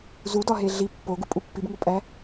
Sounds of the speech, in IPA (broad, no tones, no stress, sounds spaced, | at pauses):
z u d ɒ ɦ e ɮ i pː o ɡ u pʼ u pː i b ŋ o pʼ æ